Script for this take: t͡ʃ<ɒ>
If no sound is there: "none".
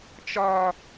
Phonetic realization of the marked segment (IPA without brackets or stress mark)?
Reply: ɒ